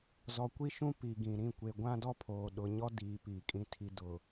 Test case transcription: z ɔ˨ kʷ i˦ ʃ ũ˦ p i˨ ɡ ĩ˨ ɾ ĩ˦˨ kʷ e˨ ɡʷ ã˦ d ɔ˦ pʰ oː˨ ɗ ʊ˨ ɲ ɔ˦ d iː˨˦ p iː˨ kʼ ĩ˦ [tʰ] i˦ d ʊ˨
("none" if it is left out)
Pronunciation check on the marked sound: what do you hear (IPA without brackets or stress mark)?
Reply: tʰ